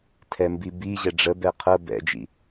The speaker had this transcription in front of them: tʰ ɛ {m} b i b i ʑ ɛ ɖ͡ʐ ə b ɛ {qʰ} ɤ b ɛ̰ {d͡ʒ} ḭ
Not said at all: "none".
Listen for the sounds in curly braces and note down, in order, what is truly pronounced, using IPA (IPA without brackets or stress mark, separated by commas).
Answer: m, qʰ, d͡ʒ